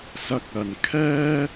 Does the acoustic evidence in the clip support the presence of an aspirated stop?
yes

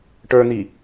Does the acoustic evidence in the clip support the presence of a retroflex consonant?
yes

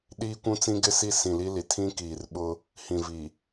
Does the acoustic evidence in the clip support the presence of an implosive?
yes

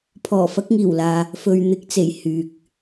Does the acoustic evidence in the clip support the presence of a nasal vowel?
no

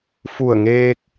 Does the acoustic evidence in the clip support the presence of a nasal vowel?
no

